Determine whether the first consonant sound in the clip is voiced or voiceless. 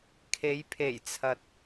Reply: voiceless